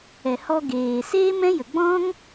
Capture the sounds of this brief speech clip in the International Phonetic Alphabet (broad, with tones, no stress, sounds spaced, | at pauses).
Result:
ɛ˨ h ɔ˧ ɡ eː˨ s eː˦ m ɛ̃˦ j ə˨ ɡ͡b ɔ̃˦ ŋ